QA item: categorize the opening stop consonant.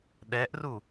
implosive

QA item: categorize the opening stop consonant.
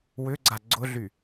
click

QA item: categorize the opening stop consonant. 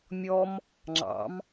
click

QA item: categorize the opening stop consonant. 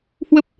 plain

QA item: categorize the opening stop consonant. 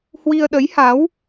implosive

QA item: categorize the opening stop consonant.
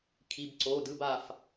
aspirated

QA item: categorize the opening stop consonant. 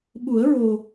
implosive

